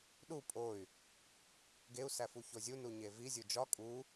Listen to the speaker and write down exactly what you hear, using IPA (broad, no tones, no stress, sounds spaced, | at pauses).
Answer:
ɗ u pʼ o y̯ | ɡ e u̯ s æ f u ç o zʲ u n u ɲ e v i zʲ u d͡ʒ ɒ kʼ u